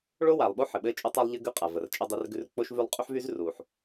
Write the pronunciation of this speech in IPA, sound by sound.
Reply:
ɭo˥wa˩lˠɓo˥ ħɘ˩ɓɘː˥t͡ʃʼʉ˥tˤa˥lˠ ʎɘ˥ɡʉ˥qʼa˩ və˩rt͡ʃʼə˥dˤe˥rɡʉ˥r k͡po˥ʃ vʉ˥lˠ qʼy˥ħvyː˥zruː˩ħ

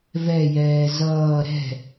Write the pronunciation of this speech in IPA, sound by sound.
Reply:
vɛjɛː zʌː ɾɛ̤

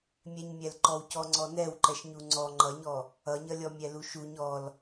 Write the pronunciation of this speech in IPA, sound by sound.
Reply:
mʲɛɲmʲɛlǃɔwcɔ ŋ͡ǀɔnɛwǃɛʃ ɲuŋ͡ǀɔ ŋ͡ǃʌɲɔ | ʌɲʌlʲɔ mʲɛluʃuɲ ɔl

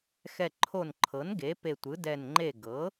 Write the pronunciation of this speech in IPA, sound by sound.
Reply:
xɛ˧˩ǃʰo˧˩nǃʰɤ˩˥n ɡe˩˥pe˧˩tʷɯ˩˥dɛ˧˩n ŋ͡ǃe˧˩ɡɤ˩˥

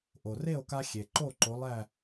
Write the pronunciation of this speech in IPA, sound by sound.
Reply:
ʔo˩re˥˨o̯ ka˦xʲe˩ǃo˥˨ǃo˨˦ lˠæ˥˨

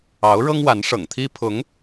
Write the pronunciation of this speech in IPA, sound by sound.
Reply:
ɑ˧˥ʊ̯ɻɤ˥ŋ wa˧˥nʂɤ̰˨˩ŋt̪ʰi˥ pʰʊ˧˥ŋ

